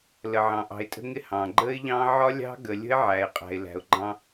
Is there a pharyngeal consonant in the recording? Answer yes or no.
yes